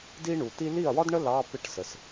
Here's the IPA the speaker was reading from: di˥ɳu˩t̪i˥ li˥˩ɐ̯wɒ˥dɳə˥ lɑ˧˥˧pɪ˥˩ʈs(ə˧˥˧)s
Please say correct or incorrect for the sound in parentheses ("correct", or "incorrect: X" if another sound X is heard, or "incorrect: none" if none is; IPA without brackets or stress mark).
incorrect: ə˩